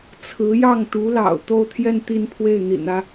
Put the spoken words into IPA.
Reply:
t͡sʰ ɹ̩˧˥ j ɑ˥˩ ŋ t̪ u˧˥ l ɑ̰˨˩ ʊ̯ t̪ o˥˧ ʊ̯ t̪ʰ j ɛ˥˧ n t̪ i˥˧ n pʰ w e˥˩ ɪ̯ n̪ ḭ˨˩ n ä˦

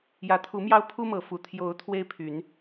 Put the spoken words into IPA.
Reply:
j ä˨˦ t̪ʰ u˨˦ m j ɑ˦ ʊ̯ pʰ u˦ m ɤ˨˦ f u˨˩ t̪ʰ j o˨˦ ʊ̯ t̪ʰ w e˦ ɪ̯ pʰ y˨˦ n

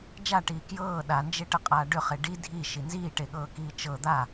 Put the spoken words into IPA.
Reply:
d͡ʒ a ʈ iː k j ɤː ɗ a n d͡ʒ e ʈ ə qʼ aː ɖ ʏ χ e ɖ i dʱ i ʃ i n z iː ʈ e ɠ ɤː k iː t͡ʃ ɤ d̪ a

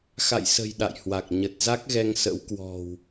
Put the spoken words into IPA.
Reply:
x a̰˧˨ j s ə̤˨˩ j ɗ a̰˧˨ j h w a˨˩ k̚ ɲ ə˨˩ t̚ z a˦˥ k̚ ɣ ɛ˧ ŋ s ə̰˧˥ w k w ɔ̤˨˩ w

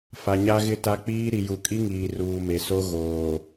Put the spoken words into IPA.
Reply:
f a˨ ɲ a˦ ɣ ɪ˦ t a˦ k͡p iː˦ ɾ i˨ j u˨ kʼ i˦ ŋ iː˨ r uː˨ m e˨ s o˦ ɣ oː˨

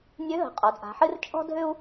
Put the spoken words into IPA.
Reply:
nʲ ø˧˥ ɦ ə̤˩˧ qʼ ɔ˩˧ d ʔ a̤˩˧ ħ ɨ˥ r t͡ʃʼ ɔ̤˥ dʱ ʏ˥ u̯

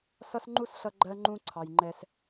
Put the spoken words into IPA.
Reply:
s ʌ˥ s ŋ͡ǃ u˥ s ɬ ʌ˦ ɡ͡ǃ ɜ˦ ŋ͡ǃ ũ˦ ǀʰ ɑ˦ j ŋ͡ǃ ɛ˥ s

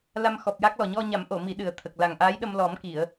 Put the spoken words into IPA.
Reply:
l a˧ m x ɔ˨˩ p̚ j a˦˥ k̚ l ɔ˨˩ ɲ ɔ˧ ɲ a˨˩˦ m ʔ o˨˩˨ m i˨˩˦ ɗ ɨ˨˩ ə̯ t̪ʰ ə˨˩ k̚ l a˨˩ ŋ ʔ aː˧˥ j ɗ ə˧ m l ɔ˨˩˦ m k i˨˩˨ ə̯

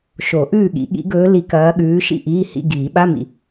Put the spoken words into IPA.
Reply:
ʃ o˨˩˦ ʔ ʉː˥˩ ɠ ḭ˨˩˦ ɠ ḭ˧˥ ɡ ɵː˧˥ l i˧˥ k ɐː˧˥ ɠ ʉː˧˥ ʃ ḭ˥˩ ʔ iː˧˥˧ h ḭ˧˥˧ ɡ iː˨˩˦ ɓ a˧˥˧ m ḭ˨

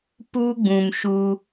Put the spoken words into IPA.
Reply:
p u˦ ɡ͡b ũ˨ m ʃ u˧

